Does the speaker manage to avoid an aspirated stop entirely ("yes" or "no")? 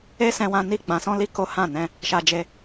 yes